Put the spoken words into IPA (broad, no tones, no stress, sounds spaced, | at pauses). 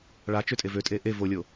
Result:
ɭ a t͡ʃ ø tʼ e v ø tʼ e ʔ e v o lʲ o